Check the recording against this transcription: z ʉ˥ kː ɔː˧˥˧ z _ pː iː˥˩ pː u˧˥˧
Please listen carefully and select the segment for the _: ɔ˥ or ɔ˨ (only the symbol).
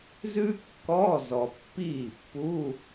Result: ɔ˨